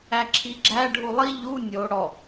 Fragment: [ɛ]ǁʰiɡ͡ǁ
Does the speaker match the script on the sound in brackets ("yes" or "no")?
no